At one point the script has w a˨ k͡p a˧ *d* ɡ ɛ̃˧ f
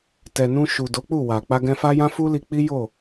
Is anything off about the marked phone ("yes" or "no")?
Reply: yes